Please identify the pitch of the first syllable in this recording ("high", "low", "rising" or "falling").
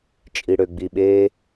low